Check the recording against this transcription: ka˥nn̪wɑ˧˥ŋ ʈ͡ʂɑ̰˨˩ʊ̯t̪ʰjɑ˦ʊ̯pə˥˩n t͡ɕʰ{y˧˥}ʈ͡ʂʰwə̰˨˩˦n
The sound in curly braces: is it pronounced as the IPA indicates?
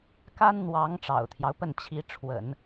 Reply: no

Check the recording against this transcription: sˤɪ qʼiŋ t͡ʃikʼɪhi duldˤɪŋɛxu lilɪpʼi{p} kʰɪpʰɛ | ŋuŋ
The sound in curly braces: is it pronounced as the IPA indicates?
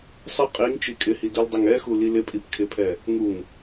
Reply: yes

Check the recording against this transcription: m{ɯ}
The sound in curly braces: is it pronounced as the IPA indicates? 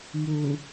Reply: no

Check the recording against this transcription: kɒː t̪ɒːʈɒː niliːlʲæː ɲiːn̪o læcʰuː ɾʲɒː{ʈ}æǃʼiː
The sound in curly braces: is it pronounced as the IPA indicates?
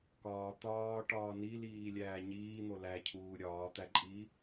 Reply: no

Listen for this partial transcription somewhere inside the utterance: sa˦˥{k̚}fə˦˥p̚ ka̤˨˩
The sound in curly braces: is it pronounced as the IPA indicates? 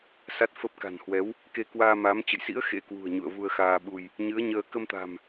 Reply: no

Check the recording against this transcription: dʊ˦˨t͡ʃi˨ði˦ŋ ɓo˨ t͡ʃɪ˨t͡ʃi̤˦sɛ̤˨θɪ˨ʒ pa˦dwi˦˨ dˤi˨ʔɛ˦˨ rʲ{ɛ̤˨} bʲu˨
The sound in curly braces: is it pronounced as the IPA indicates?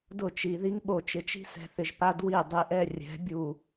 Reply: no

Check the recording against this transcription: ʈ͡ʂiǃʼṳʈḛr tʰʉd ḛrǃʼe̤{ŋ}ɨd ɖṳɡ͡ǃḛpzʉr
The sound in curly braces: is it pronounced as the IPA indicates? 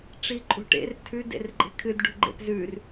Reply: no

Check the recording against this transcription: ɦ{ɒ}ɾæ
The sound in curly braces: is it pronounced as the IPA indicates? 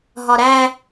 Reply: yes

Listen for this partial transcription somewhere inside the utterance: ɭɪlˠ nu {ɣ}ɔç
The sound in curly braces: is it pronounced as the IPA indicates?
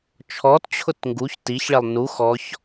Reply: no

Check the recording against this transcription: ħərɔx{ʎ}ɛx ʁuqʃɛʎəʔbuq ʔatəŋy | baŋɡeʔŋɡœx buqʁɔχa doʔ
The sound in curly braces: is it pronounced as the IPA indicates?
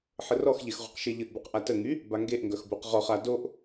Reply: yes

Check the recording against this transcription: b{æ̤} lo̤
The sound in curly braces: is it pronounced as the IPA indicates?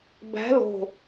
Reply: yes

